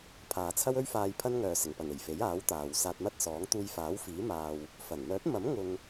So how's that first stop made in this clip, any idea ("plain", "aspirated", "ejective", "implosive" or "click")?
aspirated